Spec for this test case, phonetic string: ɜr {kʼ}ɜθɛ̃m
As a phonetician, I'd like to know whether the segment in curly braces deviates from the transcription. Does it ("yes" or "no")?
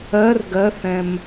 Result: yes